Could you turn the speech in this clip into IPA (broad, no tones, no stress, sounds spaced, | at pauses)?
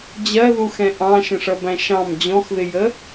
d͡ʑ ɜ ð u x ɛ̃ ʔ ɑ̃ ʃ ə̃ ʂ ʌ b æ̃ ʃ ɑ̃ m d͡ʑ ɔ̃ x ð ɪ j ə